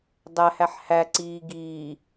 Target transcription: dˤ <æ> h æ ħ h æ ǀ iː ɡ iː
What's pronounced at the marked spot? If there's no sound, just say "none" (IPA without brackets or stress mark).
æ